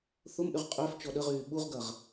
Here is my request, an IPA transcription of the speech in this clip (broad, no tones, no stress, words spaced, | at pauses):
θʊmʔyʁ qʼœf t͡ʃɔɗəʁyː ɓuʁɡɐʁ